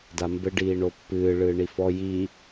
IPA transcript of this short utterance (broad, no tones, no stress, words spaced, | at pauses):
dambɘɖiːɳo pːɨː ɭɨːɳifɔ jiː